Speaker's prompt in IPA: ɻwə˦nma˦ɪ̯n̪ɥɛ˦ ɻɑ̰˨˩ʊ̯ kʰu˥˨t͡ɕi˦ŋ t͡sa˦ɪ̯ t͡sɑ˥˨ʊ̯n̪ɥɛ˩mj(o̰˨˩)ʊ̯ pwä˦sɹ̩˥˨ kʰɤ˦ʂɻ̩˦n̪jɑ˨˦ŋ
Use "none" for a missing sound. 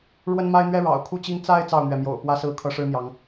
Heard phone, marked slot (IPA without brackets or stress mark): o̰˨˩